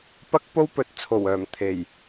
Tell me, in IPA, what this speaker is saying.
p ɐ˥ k̚ p o˥ w p ɵ˨ t̚ t͡sʰ o˨˩ w œː˨˩ m t̪ʰ e˨˩ j

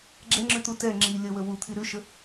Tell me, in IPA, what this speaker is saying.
ɡ͡ǁ ɛ ŋ͡ǁ ʉ t̪ u t ɛ ŋ͡ǁ i lʲ ə w ə w u t̪ʰ i ɾ ʉ ʃ ə

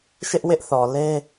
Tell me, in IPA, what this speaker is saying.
ʃ ɪ˦ ʔ w ɪ˦ ʔ θ ɔ˨ l e˦

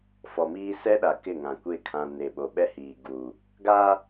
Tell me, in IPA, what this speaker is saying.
f ɔ˨ m iː˦ s ɛ˦ ɗ a˨ k ɪ˦˨ ŋ ã˨ kʷ e˦ kʰ ã˨ n e˨ ɓ o˨ ɓ ɛ˦ h iː˨ ɡ u˨ | ɡ aː˦

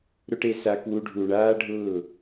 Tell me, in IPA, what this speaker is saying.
ɾ ʊ˦ ʈ e˧ s a˧ k w u˧ ɖʱ u˨ ɳ aː˦ ɖʱ ʊː˦˨

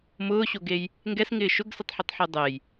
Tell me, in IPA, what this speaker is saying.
m ʊː ɕ o ɡ e j | ŋ ɡ ɛ s ŋ ɪː ʃ ʊ ɡ s ɪ tˤ ħ u tˤ ħ e dˤ e j

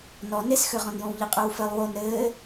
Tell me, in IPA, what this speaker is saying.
n ɔ n e s x ø ʁ ɔ̃ n j õ w ʎ i qʼ ø w f ɘ lˠ w o n ɾ ɘː

